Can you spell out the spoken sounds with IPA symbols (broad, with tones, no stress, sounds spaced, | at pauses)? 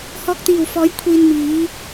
h ɔː˧ k̚ t̪ iː˨˩ w f ɔː˨˥ j kʷʰ iː˧ n m iː˨˥